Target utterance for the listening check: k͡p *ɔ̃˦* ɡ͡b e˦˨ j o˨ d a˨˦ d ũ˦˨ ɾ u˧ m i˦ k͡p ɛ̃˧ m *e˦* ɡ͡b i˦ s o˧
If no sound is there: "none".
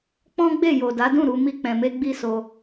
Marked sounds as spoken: ɔ̃˦, e˦

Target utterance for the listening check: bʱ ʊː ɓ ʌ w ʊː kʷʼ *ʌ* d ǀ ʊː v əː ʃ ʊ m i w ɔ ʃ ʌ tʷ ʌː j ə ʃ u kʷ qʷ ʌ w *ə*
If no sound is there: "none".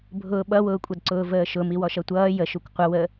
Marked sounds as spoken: ʌ, ə

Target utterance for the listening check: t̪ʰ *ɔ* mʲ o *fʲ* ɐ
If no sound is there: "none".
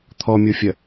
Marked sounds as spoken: ɔ, fʲ

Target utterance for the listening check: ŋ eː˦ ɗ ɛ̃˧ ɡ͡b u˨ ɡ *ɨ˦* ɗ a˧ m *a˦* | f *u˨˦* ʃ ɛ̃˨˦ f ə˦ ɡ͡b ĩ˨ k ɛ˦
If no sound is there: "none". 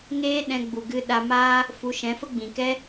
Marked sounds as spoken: ɨ˦, a˦, u˨˦

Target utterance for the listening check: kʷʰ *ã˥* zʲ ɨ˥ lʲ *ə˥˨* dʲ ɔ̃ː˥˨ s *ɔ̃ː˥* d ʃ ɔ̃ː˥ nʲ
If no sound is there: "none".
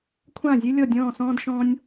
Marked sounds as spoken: ã˥˨, ɔ˥˨, ɔ̃ː˥

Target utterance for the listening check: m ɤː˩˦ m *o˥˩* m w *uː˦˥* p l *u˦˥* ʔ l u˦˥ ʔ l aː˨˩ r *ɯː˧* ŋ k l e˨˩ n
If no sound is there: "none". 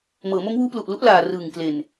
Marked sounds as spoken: o˦˥, uː˦˥, u˨˩, ɯː˨˩

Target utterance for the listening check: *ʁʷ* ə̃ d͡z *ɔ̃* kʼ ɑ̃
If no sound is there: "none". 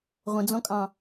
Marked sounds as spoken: ʁʷ, ɔ̃

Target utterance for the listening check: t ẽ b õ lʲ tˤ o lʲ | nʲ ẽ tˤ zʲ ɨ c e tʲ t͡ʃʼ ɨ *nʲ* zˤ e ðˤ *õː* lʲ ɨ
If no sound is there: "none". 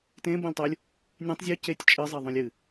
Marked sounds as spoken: none, õ

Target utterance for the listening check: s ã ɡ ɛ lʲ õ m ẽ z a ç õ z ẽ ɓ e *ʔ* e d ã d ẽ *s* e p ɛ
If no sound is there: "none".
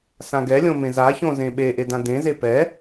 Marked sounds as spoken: ʔ, z

